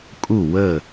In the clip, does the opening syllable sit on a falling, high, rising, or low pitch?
falling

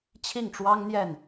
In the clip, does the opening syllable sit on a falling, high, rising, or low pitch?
falling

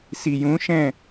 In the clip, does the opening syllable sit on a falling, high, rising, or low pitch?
low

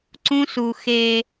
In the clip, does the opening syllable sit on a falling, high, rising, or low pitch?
high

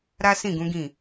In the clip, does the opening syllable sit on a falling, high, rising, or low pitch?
high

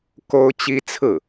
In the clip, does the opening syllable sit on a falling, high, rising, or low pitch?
high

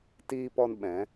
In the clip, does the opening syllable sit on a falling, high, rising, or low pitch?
high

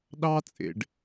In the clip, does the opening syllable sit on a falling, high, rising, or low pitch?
high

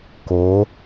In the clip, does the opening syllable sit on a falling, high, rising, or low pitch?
rising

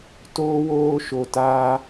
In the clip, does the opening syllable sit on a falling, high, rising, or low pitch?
high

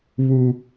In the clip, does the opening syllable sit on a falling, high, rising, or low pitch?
high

